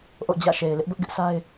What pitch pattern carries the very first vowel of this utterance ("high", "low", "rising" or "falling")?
falling